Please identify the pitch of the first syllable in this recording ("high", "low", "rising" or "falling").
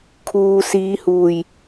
low